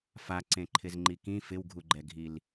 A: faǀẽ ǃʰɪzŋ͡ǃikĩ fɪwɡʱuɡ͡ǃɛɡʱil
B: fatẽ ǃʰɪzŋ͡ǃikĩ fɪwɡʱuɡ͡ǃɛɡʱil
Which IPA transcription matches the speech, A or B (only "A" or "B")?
A